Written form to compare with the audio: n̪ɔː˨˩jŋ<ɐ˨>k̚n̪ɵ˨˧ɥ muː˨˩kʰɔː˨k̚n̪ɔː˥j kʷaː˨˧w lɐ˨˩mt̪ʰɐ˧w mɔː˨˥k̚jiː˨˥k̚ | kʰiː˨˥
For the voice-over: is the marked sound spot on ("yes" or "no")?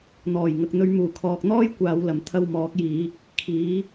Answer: yes